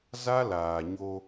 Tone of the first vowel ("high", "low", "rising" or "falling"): high